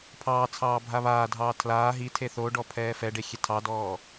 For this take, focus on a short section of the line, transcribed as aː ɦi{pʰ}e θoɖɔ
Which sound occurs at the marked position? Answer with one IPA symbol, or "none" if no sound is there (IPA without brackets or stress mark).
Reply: tʰ